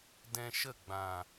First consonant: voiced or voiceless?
voiced